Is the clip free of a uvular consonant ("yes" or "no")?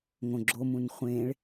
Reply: no